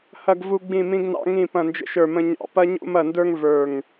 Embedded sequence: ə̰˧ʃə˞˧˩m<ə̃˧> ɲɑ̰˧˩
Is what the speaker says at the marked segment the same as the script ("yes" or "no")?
yes